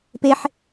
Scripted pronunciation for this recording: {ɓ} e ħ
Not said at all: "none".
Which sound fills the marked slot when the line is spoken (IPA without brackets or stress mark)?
p